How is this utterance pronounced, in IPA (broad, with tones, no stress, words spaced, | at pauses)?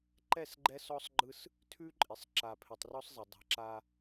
ǃɛ˦˨s ɡ͡ǃɛ˦ sɔ˦sˤɡ͡ǃɯ˦s | tʰʉ˦ǃʼɪ˨sˤ ǁa˨ pʰɪ˨tˤrɔ˦sˤzˤe˨ dˤa̤˨ ǁa˦